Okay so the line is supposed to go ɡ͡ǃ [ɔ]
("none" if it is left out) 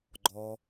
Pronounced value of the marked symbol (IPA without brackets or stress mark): ɔ